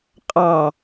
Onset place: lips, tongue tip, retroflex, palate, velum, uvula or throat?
uvula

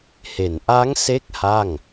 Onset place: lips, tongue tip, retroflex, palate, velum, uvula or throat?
throat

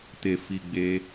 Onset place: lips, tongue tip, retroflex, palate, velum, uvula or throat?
tongue tip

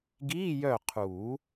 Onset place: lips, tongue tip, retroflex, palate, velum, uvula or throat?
velum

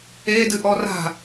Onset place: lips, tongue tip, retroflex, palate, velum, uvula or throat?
tongue tip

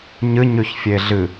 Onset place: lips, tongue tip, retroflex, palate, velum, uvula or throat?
palate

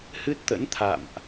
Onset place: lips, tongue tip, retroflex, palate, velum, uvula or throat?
throat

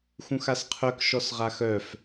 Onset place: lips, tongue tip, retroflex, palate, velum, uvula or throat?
velum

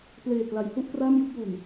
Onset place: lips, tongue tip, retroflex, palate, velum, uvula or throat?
lips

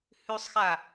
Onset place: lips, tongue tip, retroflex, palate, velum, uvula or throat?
throat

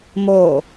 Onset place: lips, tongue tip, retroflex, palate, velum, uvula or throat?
lips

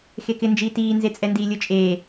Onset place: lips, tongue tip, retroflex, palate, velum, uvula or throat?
velum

